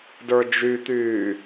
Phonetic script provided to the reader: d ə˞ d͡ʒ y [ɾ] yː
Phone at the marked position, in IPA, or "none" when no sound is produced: t̪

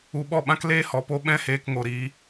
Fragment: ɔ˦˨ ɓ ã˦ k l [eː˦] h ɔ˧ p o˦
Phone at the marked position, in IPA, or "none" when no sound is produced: eː˦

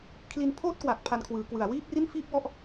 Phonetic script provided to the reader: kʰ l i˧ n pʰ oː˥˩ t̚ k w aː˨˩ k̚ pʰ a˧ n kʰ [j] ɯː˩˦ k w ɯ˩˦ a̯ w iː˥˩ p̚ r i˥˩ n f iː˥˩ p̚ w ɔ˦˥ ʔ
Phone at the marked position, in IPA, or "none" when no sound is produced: w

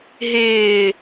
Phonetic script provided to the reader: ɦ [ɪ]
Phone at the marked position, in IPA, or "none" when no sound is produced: ɪː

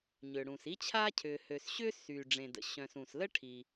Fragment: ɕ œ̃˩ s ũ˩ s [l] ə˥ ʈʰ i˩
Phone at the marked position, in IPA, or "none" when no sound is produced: l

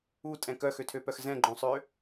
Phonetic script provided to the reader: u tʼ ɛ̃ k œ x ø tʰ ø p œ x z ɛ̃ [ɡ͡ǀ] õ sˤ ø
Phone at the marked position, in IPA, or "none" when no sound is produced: ɡ͡ǃ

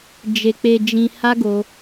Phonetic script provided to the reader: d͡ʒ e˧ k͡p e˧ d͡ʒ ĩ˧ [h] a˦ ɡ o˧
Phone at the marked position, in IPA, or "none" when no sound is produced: h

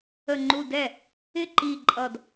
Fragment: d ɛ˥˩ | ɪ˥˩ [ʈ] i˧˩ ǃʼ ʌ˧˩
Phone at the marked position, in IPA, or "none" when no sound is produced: ǃ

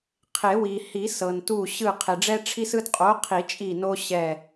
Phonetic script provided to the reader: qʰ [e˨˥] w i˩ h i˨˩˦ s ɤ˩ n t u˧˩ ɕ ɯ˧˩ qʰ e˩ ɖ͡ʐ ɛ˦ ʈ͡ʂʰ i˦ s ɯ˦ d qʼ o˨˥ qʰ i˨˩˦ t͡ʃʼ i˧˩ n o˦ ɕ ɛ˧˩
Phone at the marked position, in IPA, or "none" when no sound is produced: e˨˩˦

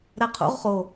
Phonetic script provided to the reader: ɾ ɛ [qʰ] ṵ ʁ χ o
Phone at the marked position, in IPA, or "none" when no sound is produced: qʰ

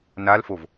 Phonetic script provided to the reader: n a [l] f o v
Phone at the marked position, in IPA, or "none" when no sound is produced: l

